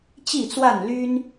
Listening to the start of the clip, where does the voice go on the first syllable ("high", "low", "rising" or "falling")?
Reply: falling